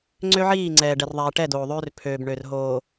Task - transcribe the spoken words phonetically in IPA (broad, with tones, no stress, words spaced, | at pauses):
ŋ͡ǀø˦ʕiː˦˨ ŋ͡ǀɛː˨ɖɛ˨r ðˤɛː˨ʈɛ˦˨doː˨ðˤøː˦r pʰøː˨b ɳø˨rɦoː˨